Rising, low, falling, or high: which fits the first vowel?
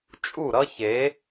falling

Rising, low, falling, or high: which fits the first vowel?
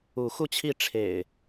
rising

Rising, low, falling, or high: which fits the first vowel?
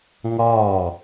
falling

